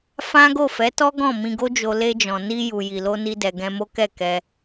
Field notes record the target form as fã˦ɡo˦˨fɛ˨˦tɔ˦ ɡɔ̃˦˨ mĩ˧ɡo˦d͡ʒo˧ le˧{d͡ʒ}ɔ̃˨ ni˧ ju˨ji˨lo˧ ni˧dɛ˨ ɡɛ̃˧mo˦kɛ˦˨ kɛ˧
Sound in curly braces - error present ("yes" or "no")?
no